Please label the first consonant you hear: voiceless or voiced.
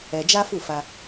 voiced